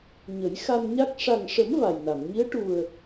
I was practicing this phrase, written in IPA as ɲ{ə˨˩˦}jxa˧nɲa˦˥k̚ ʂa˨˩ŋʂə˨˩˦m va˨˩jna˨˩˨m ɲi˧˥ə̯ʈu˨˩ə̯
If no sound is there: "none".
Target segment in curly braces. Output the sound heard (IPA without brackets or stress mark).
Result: ə˨˩˦